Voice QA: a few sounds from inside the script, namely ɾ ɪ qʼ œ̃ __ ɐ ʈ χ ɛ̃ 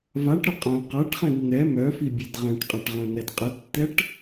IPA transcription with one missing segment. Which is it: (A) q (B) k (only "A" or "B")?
A